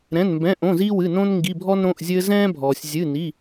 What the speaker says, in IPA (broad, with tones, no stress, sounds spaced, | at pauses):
ɾ ɛ̃˩˧˩ n m b ɛ̃˩˧˩ ʔ õ˩˧˩ z iː˦ w ɨ˩˧˩ n õ˦ n ŋ ɡ i˩˧˩ bʱ ɔ˦ n ɾ õ˩˧˩ ʔ zʲ ɘː˦ z ɛ̃ː˦ bʱ ɔː˩ sʲ zʲ ɨ˩˧˩ n i˩˧˩